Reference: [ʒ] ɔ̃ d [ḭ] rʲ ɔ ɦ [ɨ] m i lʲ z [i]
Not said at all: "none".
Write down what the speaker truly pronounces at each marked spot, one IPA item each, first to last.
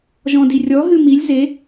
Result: ʒ, i, ɨ, e

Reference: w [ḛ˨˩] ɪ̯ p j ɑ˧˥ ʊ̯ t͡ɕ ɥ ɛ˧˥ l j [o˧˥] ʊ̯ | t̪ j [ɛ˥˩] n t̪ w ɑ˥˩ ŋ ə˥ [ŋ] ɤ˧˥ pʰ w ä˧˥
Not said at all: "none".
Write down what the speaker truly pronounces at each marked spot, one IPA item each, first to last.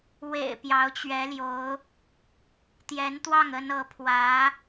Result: ḛ˨˩, o˧˥, ɛ˧˥, n

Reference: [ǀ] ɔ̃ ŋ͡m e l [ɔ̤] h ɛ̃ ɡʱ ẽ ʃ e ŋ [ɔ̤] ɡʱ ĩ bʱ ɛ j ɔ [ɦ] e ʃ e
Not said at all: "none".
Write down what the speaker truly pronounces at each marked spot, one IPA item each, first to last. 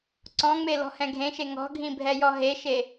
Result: ǀ, ɔ̤, ɔ̤, ɦ

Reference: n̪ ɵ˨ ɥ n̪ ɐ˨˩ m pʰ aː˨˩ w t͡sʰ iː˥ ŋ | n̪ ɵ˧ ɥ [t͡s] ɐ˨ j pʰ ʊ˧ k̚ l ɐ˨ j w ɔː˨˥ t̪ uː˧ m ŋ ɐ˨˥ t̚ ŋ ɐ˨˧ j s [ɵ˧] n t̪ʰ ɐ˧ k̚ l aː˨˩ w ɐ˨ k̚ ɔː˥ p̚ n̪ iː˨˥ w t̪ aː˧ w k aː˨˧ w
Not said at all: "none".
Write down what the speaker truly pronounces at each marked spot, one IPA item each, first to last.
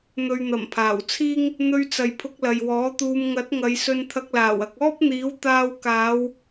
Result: t͡s, ɵ˧

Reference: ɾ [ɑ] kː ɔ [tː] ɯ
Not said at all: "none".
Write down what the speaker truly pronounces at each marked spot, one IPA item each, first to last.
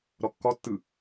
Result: ɔ, tː

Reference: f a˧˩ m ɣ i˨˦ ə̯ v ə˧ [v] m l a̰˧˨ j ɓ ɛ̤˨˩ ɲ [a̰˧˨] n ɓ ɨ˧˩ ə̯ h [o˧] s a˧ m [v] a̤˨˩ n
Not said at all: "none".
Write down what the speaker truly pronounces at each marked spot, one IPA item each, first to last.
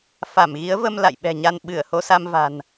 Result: none, a˧, o˧, v

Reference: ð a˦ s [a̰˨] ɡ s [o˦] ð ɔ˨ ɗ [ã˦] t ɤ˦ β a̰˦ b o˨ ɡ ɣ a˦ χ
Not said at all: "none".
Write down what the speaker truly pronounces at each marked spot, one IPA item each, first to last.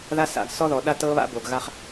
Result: a̰˨, ɔ˦, a˦

